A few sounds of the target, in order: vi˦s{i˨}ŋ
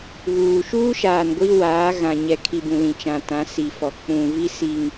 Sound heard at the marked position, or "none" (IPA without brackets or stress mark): i˨